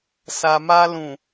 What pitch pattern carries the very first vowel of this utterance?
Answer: low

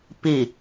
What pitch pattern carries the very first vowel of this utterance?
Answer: low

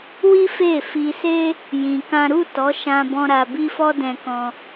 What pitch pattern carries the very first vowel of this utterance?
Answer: high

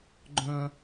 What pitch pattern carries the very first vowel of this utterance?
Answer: high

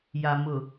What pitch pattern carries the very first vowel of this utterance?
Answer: low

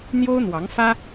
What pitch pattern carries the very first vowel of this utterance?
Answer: high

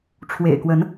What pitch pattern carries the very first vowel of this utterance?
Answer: low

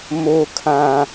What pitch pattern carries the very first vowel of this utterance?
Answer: high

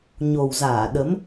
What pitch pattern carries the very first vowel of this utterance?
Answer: low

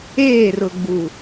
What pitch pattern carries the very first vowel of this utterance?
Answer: falling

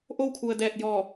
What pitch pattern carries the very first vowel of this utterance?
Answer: falling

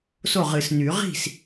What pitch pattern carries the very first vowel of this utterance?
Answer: falling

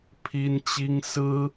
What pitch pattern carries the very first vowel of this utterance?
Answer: high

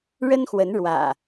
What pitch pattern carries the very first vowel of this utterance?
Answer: high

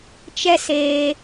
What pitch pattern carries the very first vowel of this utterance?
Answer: high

